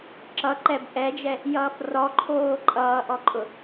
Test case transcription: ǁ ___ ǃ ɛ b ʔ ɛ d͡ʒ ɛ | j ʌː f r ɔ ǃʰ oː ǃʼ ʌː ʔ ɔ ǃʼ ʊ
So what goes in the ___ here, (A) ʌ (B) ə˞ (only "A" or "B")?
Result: A